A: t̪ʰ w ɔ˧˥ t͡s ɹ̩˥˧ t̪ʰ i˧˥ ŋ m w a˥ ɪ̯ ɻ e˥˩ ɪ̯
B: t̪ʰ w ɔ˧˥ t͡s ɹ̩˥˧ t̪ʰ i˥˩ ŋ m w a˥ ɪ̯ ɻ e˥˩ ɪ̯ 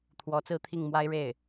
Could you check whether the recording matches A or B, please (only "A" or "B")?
B